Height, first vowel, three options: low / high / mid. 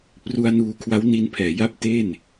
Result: high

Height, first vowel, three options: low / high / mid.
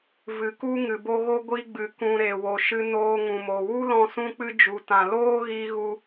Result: high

